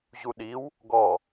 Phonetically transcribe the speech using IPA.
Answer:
ʑuɗiw | ɡɔ

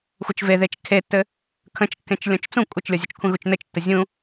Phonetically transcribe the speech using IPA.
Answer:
xʷət͡ʃveðet͡ʃ kʰetːɘ | kʰə̃t͡ʃkːẽt͡ʃ lʲɔ̃t͡ʃt͡sũ kʷʼɘt͡ʃlʲɔzʲət͡ʃkʷʰẽ ɣut͡ʃnɘt͡ʃtːə zʲũ

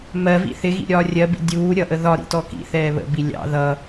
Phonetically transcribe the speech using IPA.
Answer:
mɜvḭ θɪɣḭ ɾʲɒːrʲɜbḭ dʲuː ɾʲʌʔə ðɒɾḭ tɔkḭθɛː βə̰bi lʲɑ̰ ðʌ

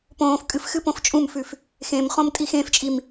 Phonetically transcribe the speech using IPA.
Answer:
põːf kʼɨfxɨ põft͡ʃʼũmfʉf | xẽm χõmtʼixẽft͡ʃʼim

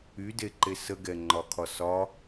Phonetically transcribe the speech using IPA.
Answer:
ydeǃe səɡɛŋ͡ǃɒkʰɒ sɒ

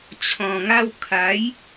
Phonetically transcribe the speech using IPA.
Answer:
t͡ɕʰɔ̃˨˩ŋa˦w kʰa˨˦j

